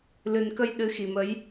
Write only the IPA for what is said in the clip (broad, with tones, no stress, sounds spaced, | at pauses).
l ɨ˨˩ n k ə˧ j ɗ ɨ˨˦ x i˨˩ m ə˨˦ j